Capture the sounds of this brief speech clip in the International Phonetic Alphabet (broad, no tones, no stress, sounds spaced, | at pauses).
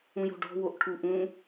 ũ j o̤ ɖ ɔ̤ w o ʔ ʈʰ u ʔ ũ